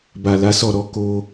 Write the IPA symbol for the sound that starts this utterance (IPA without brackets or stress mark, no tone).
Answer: b